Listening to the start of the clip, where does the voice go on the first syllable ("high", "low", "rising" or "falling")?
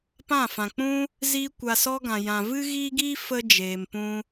falling